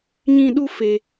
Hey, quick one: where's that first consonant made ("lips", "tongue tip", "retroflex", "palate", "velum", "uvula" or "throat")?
palate